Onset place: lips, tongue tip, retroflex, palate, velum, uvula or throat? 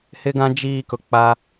throat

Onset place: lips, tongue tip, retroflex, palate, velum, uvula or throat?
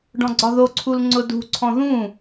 retroflex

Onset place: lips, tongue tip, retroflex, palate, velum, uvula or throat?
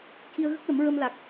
palate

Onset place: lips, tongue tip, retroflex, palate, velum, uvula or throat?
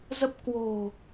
tongue tip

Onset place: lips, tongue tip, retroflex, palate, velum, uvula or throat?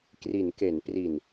velum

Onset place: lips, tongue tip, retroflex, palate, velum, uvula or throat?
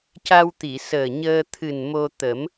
palate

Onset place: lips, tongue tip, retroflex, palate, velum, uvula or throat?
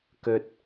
velum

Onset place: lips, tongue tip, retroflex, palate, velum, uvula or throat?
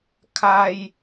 velum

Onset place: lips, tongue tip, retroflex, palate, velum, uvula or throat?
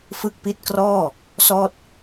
lips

